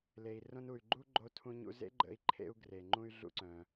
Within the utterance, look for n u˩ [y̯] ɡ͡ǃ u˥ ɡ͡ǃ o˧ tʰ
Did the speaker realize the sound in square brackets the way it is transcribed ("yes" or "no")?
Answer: yes